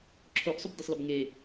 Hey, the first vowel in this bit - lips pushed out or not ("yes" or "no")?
yes